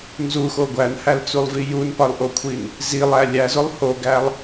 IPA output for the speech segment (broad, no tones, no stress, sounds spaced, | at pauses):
n z u x o ɡʷ æ n h æ l t͡s u lˠ v i j u n p ɒ l ʔ o kʷʰ i n | z i lˠ æ lʲ æ z o lˠ h o ɡ æ lˠ